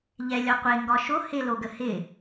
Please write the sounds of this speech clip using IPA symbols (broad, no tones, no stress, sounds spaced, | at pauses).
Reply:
ʎ ɛ lʲ ɒ qʷ e ŋ ɡ ɒ ʃ o h ɪ l o ɡ ə h ɪ